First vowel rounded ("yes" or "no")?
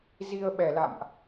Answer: no